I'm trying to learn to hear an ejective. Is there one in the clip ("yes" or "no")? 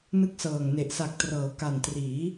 no